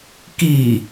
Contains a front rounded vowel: no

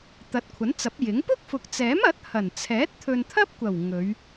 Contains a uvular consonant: no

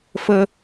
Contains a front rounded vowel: no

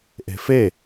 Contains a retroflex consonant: no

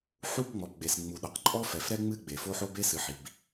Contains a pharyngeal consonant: yes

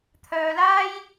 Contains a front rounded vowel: yes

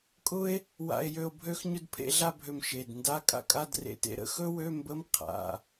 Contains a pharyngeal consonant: no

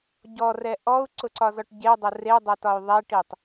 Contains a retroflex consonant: yes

